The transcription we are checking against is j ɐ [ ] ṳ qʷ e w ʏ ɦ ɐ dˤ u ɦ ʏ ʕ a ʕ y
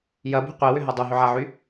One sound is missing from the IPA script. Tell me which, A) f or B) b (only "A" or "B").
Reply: B